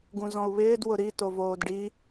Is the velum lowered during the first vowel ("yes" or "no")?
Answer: yes